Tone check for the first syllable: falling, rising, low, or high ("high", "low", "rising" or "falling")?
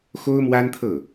high